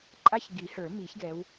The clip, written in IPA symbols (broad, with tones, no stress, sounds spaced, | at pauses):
ǃʼ a˦ ç ɡ i˨˩˦ h ə˞˨˩˦ m i˨˩˦ ç ɡ ɛ˨˦ w